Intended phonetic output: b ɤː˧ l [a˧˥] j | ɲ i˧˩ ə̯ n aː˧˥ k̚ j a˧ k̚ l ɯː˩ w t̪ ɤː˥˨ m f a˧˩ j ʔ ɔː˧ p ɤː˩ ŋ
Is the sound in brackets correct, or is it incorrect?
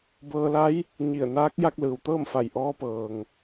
correct